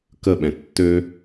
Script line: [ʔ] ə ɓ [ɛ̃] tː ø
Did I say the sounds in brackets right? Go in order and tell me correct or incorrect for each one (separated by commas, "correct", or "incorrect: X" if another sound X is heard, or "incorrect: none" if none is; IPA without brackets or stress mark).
incorrect: k, correct